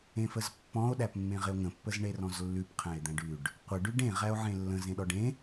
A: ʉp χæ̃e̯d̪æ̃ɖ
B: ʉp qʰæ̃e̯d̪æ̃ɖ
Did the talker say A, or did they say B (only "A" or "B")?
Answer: B